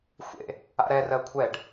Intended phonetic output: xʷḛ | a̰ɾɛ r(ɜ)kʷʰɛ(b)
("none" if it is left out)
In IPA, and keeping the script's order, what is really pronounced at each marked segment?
ɜ, ɖ

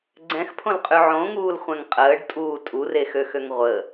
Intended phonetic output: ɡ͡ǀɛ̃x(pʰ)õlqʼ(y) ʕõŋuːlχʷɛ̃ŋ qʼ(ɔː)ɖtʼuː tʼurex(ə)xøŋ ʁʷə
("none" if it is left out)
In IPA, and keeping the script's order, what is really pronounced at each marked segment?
pʰ, y, əː, ø

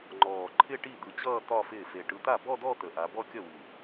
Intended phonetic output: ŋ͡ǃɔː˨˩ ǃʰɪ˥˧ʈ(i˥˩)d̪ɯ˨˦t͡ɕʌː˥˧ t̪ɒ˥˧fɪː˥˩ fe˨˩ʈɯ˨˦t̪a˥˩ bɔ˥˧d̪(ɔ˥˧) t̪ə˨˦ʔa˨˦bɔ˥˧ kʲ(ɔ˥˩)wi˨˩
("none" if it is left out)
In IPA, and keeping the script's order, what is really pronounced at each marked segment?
i˥˩, ɔ˥˧, ʌ˥˩

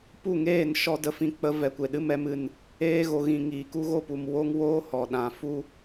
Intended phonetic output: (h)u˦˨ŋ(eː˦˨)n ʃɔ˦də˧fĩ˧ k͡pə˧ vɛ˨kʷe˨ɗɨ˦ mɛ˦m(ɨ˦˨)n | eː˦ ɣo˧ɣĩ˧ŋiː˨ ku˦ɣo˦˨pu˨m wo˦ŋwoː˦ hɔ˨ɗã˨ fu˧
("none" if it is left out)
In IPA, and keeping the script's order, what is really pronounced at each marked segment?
p, eː˦˨, ɨ˦˨

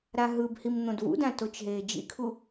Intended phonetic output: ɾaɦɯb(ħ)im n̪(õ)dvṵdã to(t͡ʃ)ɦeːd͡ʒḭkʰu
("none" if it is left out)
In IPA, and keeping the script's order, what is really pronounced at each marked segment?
h, õ, t͡ʃ

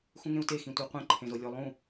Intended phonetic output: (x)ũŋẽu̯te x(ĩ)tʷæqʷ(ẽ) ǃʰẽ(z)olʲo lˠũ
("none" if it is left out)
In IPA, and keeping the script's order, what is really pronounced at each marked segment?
x, ĩ, ẽ, z

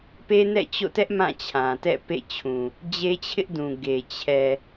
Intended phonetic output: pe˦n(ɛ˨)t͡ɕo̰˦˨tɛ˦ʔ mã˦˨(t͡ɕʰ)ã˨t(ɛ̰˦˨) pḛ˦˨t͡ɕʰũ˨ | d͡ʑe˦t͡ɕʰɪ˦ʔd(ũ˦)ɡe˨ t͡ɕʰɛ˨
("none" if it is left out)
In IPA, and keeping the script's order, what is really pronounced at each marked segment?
ɛ̰˦˨, t͡ɕʰ, ɛ̰˦˨, ũ˨

